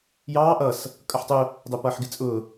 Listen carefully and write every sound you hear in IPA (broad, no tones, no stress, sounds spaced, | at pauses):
j ɑː ʔ ʌ s | kʼ ʌ ħ tˤ ʊ | dˤ ɛ p ʌː ħ ɡ ɪ t͡sʼ ʊː